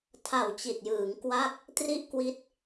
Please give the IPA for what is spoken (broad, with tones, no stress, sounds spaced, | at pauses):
tʰ a˨˩ w t͡ɕ i˨˩ t̚ j ɯː˩˦ ŋ k w a˥˩ k̚ | t r i˥˩ ʔ k w i˦˥ t̚